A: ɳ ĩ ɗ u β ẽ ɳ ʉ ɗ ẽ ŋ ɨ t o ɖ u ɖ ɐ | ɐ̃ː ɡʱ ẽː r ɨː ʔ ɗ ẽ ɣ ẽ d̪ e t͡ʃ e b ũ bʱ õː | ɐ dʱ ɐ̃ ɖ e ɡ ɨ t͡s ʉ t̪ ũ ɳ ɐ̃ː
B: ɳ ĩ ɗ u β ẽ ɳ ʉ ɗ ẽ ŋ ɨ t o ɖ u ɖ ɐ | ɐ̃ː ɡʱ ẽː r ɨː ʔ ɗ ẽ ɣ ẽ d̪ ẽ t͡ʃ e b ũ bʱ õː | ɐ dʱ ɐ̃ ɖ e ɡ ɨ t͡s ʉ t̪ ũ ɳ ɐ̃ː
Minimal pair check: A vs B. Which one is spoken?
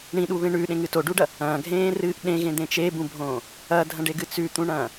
B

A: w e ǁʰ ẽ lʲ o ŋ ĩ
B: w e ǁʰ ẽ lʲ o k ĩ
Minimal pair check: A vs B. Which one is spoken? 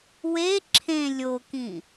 B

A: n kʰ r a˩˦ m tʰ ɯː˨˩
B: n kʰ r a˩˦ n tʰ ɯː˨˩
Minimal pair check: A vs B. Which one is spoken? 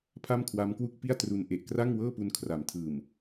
A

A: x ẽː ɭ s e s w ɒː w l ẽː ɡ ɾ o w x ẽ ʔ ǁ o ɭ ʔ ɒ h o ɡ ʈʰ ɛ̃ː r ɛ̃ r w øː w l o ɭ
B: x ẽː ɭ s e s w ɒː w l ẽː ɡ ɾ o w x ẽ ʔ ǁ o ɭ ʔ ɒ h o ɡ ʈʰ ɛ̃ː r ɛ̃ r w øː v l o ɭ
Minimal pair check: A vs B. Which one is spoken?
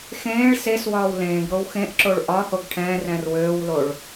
A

